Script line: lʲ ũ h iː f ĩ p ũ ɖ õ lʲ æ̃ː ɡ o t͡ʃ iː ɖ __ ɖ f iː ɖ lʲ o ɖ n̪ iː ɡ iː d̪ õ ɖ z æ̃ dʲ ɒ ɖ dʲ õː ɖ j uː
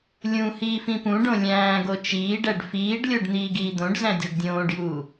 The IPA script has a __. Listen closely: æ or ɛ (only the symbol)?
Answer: æ